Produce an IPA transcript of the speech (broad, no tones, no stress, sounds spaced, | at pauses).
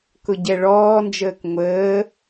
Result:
k ʊ ɟ ɛ ɭ ɔː n d͡ʒ əː k ŋʷ əː